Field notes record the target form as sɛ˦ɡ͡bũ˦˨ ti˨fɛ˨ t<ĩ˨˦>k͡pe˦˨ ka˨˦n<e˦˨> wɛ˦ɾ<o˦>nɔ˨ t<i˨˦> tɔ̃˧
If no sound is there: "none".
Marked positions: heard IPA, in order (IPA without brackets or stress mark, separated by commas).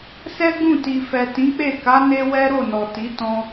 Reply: ĩ˨˦, e˧, o˦˨, i˨˦